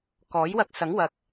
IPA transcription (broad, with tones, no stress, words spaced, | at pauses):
kɔː˨˥jwɐ˧k̚sɐ˨˥ŋ wɐ˨k̚